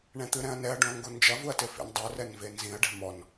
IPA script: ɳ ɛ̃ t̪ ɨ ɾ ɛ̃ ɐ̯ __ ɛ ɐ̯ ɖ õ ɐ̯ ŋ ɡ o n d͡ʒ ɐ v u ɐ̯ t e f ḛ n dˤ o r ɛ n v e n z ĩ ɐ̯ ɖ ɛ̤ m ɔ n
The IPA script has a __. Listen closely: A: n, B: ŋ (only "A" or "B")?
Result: A